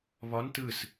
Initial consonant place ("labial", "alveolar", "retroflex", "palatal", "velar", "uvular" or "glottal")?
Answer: labial